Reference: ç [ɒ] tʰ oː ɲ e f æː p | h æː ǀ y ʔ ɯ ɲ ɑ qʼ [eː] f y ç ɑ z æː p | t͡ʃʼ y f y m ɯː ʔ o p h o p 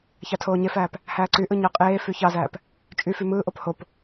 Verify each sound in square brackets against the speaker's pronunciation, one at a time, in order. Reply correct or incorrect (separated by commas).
incorrect, correct